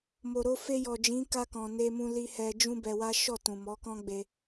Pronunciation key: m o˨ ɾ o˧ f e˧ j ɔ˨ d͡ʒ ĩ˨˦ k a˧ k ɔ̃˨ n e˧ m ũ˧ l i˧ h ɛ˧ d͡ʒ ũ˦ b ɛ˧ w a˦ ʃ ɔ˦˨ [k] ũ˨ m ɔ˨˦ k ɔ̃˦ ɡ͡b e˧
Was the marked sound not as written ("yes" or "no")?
yes